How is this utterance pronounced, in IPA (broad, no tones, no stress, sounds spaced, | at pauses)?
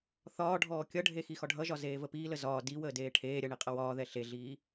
θ ɒː ɖʱ ɔː kʲ ʌ ɖʱ e x i x ɒ ɖʱ ʌ ʒ ɒ z eː v ə p iː l ə z ɒː d i w əː d eː ʈʰ eː ɾʲ ɐ ɳ i qʼ ʌ w ɒː ð ɛ ɬ e ɮ iː